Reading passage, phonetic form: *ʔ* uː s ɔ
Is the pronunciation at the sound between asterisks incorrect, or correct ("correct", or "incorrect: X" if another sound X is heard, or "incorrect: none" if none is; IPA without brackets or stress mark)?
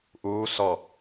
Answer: correct